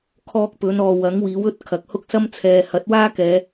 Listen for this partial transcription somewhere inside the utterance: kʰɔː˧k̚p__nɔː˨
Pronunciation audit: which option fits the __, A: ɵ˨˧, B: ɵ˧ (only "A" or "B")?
A